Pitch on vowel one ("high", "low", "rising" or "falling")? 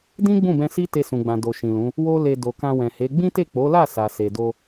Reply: high